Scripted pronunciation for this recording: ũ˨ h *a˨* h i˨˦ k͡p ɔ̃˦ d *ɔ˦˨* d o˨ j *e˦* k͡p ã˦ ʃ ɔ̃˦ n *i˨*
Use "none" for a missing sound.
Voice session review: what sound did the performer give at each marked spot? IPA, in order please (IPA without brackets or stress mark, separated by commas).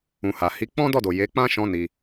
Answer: a˨, ɔ˦˨, e˨˦, i˧